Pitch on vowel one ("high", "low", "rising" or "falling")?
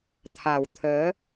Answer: low